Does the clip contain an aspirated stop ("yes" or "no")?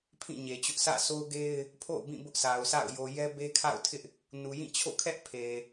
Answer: yes